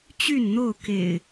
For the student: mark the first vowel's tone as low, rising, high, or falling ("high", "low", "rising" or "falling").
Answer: falling